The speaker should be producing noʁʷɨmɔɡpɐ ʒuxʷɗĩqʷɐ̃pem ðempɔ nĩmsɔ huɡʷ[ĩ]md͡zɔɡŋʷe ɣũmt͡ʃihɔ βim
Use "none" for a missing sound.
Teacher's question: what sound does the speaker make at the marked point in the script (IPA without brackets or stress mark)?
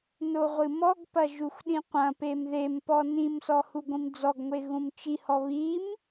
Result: ĩ